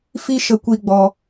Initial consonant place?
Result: labial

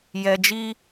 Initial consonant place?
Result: palatal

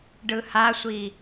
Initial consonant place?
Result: retroflex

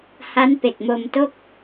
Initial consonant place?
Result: glottal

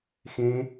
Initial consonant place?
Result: velar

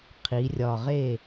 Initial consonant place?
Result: uvular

